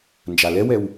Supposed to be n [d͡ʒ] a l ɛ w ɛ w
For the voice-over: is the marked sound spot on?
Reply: yes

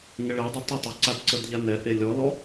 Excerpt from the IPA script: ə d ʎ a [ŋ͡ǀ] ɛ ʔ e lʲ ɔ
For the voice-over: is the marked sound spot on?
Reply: no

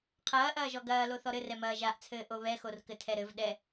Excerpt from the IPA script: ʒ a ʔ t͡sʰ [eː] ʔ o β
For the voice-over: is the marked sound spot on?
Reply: no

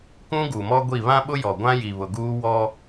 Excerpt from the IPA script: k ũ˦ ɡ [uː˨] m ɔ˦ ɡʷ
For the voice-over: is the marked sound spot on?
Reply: no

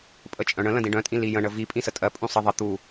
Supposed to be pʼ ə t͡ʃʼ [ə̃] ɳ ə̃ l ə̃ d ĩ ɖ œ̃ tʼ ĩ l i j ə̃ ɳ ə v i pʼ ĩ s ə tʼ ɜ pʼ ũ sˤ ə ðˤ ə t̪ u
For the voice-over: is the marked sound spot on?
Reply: no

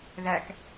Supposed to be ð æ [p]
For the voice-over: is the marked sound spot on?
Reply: no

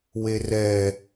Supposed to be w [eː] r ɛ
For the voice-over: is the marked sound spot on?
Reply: no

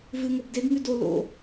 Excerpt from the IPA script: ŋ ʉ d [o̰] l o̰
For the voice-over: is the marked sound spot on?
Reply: no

